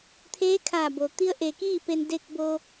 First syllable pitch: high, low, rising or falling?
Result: rising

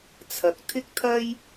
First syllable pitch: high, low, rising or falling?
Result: rising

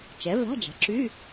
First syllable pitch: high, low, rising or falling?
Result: rising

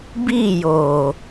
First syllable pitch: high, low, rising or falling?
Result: falling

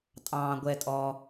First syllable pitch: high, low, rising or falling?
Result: low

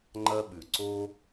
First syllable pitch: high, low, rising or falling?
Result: high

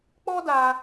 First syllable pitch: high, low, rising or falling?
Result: high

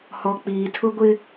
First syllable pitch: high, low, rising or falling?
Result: low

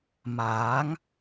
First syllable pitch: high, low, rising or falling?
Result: rising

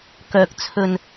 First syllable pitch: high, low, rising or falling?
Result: low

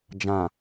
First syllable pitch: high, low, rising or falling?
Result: low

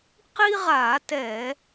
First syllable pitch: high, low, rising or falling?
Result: high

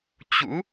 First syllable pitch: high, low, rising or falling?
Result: rising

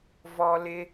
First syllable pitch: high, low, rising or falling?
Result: high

